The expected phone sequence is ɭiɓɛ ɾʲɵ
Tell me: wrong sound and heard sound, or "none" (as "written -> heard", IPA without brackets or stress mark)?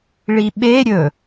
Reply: ɛ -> e